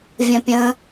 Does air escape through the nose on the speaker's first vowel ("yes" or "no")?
yes